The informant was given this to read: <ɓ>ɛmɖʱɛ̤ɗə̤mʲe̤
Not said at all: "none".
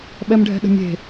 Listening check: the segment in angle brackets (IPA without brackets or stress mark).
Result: ɓ